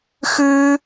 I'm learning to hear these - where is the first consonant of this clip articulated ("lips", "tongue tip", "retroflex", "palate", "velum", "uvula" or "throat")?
velum